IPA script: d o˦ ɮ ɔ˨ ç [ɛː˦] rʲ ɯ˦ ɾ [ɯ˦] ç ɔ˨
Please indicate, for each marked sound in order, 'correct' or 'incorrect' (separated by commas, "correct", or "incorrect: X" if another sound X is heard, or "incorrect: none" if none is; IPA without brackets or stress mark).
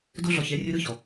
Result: incorrect: ɛ˦, correct